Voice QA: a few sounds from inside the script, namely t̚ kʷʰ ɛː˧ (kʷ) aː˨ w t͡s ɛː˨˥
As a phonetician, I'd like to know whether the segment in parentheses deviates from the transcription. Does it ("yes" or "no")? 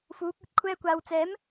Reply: no